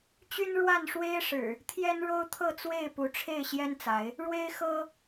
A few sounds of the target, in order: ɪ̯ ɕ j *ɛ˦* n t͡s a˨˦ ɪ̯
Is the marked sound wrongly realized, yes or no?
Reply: no